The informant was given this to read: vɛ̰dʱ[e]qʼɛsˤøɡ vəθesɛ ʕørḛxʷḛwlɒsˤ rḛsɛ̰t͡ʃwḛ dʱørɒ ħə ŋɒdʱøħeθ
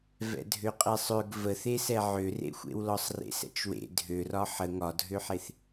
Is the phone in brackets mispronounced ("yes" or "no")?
yes